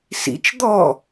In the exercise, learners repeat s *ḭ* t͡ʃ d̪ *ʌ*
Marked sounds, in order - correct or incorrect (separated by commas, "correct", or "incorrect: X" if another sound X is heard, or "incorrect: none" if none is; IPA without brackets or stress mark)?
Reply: correct, incorrect: ɔ